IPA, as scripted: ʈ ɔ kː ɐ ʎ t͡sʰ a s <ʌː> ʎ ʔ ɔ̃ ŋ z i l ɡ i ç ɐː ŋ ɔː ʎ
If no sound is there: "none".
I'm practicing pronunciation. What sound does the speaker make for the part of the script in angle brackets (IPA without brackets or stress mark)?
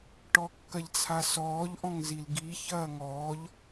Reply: ɔː